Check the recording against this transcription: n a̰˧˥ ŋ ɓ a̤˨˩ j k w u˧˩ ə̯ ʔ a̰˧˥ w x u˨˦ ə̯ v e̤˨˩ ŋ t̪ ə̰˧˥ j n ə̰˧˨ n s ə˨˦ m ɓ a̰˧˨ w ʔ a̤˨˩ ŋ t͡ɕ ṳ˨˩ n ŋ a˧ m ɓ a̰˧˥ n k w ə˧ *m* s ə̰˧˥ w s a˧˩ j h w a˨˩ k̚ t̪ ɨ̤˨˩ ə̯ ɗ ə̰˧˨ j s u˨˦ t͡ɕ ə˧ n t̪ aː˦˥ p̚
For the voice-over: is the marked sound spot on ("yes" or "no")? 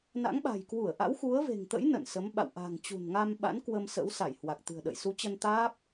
yes